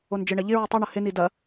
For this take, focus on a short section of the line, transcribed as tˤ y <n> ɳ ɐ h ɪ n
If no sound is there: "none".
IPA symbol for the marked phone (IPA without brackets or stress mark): none